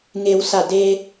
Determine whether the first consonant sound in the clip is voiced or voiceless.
voiced